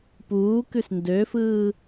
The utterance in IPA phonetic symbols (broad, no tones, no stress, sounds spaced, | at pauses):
p uː k ʉ s n d ø f ɯː